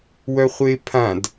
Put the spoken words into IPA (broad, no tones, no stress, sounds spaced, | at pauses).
w œ χʷ e pʰ ã d